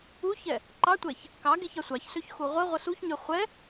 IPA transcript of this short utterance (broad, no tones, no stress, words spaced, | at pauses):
uçɛ | ǃɑtʷɛç | kɑ ɡeçɑsʷɑçsøç xuʁʷəʁʷə suçɲø χʷɛ